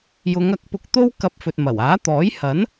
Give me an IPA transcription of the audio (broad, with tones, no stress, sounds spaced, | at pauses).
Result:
j ʊ˨˧ ŋ ɐ˨˥ k̚ p ʊ˧ k̚ t̪ o˥ w k ɐ˧ p̚ f ɵ˨ t̚ m ɐ˨˩ w aː˨˥ t̪ ɔː˨˥ j h ɐ˨˥ n